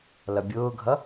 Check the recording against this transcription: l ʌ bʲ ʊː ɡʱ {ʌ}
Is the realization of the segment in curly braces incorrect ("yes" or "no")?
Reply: no